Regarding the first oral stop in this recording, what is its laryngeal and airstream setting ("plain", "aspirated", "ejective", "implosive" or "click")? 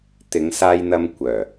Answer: plain